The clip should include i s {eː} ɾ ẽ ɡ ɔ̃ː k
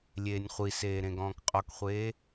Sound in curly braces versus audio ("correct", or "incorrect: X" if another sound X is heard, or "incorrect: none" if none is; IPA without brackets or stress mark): correct